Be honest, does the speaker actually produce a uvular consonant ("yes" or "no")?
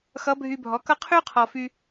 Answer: yes